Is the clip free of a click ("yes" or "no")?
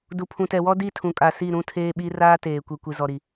yes